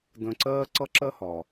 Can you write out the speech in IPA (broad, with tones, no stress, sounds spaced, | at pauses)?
d ə̃˧ ǀ ɜː˥ ǀ ʌ˥ ǁ ɜ˥ h ɒ˩